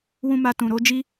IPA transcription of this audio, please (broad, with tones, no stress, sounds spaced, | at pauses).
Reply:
w ũ˦ m a˧ t ũ˨ ɾ o˨˦ d͡ʒ i˦